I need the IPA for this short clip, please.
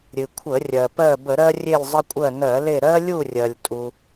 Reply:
ɾʲ ɨ˩ kʷʰ ə˧˩˧ rʲ ɜ˩ p ɜ˦˨ b ə˧˩˧ ɾ ɜ˦ rʲ e˦˨ lʲ zˤ ə˦ kʷʼ ɜ˦˨ n ɜ˧˩˧ l e˦˨ ɾ ɜ˦ lʲ u˦˨ rʲ ɜ˩ lʲ tʼ u˩

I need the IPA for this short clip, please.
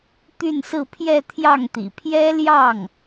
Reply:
t̪ y˥˧ n s ɹ̩˥˧ pʰ j ɛ˥˧ t̪ʰ j ɑ˥˩ ŋ t̪ ḭ˨˩ pʰ j ɛ˥ l j ɑ˥˩ ŋ

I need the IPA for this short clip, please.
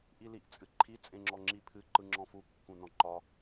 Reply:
ʔ i l i ʔ t͡sʼ ɨ ǃʰ i t͡sʼ ẽ ŋ͡ǁ ɔ ŋ͡ǁ i pʰ ɨ ǃ ɯ ŋ͡ǁ ɔ̃ f u kː ũ n ɔ̃ ǃ ɒ

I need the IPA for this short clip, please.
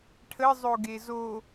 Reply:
ʈʰ ə zˤ o ɡ e z o

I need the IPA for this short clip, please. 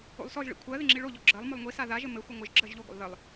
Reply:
o̰ lˠ s ɔ ʒ ɭ ḭ kʷʰ ɜ ð ɪ ŋ͡ǁ i ɭ o ʎ ɔ ɡ͡ǁ ɜ lˠ m ʊ lˠ ŋʷ i s a ð a ʒ ɘ m ɘ xʷ ɪ ŋʷ ɪ ʒ ɡ͡ǁ ɜ ʒ ʎ o ɡʷ a̰ lˠ ð ɘ lˠ

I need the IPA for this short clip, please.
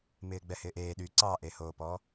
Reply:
m ɪː ɡ͡b ɛ h ɪː ʔ eː ɗ y ǀ ɑ ʔ e h oː p ɔː

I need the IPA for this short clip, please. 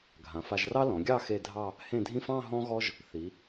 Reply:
ɡʱ ã˩˧ f a˧ ʒ r ɑ˥ l ɔ̃˩˧ ɡʲ ɑ˥˧ x e˥˧ dʱ ɑ˥˧ | h ẽ˥˧ dʱ ĩ˥ f ɑ̃˥˧ ɦ ɔ̃˥ ɣ ɔ˥ ʒ | θ i˩˧

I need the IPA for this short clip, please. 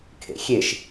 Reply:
kʰ ḛ xʲ e ʃ

